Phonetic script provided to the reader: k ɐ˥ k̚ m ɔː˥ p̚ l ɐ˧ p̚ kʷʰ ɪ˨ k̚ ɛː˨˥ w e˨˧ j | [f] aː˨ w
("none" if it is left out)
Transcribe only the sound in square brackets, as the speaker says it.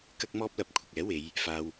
f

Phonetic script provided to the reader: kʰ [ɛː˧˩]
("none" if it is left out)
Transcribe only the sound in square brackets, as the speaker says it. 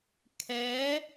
ɛː˧˥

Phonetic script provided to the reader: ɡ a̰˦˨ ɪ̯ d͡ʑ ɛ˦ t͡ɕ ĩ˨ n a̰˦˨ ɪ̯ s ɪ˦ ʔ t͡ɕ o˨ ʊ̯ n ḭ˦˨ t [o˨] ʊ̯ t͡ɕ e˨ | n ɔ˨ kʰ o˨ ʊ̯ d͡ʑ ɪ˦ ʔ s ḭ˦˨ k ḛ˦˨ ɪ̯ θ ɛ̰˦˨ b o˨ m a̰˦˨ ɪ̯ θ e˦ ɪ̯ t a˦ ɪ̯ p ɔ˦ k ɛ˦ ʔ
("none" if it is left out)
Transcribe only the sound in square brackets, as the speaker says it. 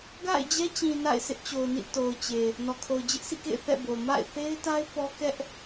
o˨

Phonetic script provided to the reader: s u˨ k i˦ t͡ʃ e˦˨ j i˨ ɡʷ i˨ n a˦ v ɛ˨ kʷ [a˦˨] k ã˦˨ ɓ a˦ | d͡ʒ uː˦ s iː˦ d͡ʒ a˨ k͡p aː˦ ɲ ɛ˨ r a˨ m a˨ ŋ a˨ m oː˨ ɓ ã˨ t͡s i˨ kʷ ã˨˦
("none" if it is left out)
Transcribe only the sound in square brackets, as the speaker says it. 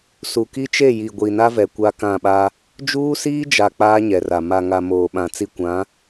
a˦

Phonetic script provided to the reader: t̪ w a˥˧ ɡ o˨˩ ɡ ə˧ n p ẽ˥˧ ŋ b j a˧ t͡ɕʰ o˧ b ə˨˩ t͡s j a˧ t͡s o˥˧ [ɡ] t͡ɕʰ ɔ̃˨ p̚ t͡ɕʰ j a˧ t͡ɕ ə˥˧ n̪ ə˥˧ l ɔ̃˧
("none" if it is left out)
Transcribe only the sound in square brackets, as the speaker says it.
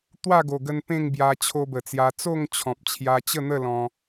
ŋ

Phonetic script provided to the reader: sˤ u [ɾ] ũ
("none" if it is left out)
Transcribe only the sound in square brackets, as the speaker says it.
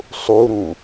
ɾ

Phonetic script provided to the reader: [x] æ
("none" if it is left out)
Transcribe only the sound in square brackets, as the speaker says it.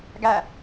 ɡ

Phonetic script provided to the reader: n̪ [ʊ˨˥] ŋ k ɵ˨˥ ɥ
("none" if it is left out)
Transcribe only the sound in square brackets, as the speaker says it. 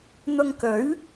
ʊ˧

